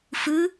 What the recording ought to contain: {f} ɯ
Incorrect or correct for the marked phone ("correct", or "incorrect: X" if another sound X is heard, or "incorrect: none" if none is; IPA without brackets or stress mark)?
correct